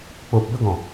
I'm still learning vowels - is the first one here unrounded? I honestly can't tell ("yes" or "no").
no